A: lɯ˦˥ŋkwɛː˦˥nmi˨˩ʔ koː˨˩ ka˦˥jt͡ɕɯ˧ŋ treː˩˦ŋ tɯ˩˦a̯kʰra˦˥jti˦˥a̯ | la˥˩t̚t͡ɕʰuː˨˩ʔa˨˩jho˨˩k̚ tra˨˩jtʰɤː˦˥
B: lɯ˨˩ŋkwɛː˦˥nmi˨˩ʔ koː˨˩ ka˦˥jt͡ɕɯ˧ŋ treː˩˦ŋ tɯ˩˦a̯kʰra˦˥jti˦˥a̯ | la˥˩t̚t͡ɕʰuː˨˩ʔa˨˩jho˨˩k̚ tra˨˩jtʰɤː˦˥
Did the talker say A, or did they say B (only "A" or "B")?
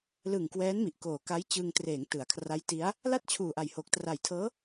B